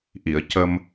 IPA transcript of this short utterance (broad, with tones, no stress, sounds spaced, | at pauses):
ʔ i˨˩˨ ə̯ c ə˧ m